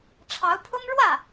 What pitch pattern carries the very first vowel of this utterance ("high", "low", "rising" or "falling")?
rising